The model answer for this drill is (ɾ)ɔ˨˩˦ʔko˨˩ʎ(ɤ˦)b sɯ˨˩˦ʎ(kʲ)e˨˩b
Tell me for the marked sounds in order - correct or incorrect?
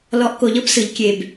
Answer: incorrect, correct, correct

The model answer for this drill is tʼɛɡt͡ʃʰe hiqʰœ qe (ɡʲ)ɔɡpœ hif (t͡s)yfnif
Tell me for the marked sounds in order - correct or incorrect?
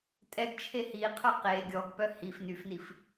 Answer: correct, incorrect

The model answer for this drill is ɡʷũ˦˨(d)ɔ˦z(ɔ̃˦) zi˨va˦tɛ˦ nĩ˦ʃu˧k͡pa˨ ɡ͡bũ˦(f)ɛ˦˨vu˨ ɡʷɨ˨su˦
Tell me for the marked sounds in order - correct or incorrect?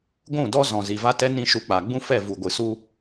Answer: correct, incorrect, correct

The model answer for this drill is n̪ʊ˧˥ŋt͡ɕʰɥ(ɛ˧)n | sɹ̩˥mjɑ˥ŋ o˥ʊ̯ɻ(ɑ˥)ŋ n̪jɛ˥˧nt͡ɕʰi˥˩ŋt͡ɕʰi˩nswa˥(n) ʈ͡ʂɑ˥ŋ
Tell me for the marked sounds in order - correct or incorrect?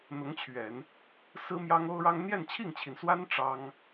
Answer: incorrect, correct, correct

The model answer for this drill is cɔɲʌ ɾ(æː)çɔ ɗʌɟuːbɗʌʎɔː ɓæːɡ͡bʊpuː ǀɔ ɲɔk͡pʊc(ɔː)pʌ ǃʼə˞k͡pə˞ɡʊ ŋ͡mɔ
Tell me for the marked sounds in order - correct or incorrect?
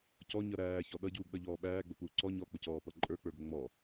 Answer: correct, correct

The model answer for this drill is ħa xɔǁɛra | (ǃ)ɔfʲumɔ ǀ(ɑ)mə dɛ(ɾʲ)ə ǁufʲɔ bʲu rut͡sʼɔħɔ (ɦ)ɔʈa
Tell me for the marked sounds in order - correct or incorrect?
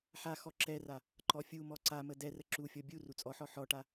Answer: correct, incorrect, incorrect, incorrect

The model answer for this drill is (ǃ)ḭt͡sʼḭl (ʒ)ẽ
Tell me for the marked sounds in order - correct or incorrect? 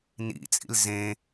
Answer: incorrect, incorrect

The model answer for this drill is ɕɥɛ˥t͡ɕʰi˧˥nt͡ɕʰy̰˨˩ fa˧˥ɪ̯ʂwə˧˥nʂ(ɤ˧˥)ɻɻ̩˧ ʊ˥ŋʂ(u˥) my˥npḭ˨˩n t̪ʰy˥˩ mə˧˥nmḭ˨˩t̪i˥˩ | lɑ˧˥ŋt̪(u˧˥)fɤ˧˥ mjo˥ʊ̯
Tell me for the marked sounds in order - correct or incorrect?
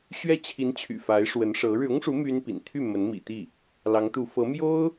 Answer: correct, incorrect, correct

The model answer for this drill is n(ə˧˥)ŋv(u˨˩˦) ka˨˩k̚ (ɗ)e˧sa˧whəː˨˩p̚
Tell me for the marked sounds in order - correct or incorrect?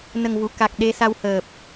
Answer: incorrect, incorrect, correct

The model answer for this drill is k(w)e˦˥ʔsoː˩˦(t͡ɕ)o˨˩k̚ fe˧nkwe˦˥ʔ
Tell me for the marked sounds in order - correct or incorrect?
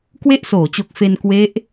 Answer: correct, correct

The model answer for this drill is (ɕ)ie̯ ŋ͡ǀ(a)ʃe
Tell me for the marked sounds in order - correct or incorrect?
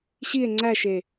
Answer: correct, incorrect

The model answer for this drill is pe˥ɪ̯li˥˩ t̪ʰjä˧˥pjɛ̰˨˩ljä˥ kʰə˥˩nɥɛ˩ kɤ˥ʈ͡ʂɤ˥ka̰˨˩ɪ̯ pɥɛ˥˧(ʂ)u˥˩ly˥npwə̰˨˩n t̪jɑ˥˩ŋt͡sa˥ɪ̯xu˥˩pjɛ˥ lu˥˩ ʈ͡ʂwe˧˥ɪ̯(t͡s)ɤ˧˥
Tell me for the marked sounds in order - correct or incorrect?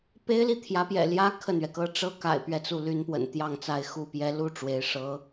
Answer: incorrect, incorrect

